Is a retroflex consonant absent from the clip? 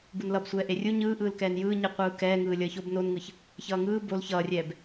yes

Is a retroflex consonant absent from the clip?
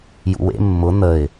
yes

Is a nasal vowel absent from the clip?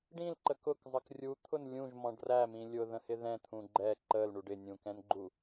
no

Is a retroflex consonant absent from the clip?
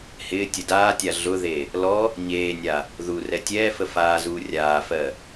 yes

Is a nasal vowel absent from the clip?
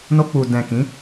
no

